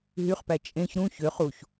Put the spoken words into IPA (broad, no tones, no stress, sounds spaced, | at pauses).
ɦ y χ p æ t͡ʃʼ ẽ ç ɾ ũ ç ø χ u ç